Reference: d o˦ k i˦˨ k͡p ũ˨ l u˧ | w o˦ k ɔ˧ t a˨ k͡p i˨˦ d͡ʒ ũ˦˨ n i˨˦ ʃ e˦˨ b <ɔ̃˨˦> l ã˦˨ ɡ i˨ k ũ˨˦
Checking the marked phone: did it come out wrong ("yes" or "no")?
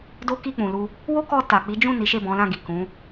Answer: no